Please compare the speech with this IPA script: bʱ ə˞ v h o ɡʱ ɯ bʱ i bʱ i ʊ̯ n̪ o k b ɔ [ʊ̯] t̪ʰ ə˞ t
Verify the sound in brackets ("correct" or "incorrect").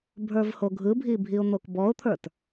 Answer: correct